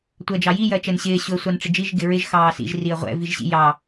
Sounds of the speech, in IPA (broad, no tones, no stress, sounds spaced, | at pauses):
tʷ ɜ d͡ʒ ɑ j i j ɜ t͡ʃ ɛ n ɕ ɪː ɕ ʊ ə̯ sʷ ɑ n ʈ͡ʂ ɪ d͡ʒ i ʒ ɡ ɪ ɹ ɪ ʒ x ɑː s ḭ ʒ r i ə̯ ʁʷ ɛ̰ v i ʒ ɕ ḭ j ɑ